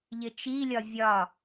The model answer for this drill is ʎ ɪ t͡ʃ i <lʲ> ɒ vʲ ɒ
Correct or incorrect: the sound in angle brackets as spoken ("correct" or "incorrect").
correct